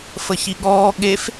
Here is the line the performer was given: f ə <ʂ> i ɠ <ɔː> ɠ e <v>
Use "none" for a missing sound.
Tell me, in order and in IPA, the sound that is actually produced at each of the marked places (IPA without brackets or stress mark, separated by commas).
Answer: ç, ɔː, f